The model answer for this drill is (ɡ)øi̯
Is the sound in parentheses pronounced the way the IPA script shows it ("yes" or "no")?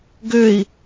yes